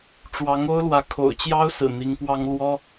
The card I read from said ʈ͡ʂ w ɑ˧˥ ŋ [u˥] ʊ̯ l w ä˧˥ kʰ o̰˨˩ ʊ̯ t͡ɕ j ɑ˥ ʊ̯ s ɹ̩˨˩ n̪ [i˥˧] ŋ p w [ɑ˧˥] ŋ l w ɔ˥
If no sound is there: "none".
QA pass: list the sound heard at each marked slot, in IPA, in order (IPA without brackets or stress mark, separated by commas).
o˥, i˧˥, ɑ˥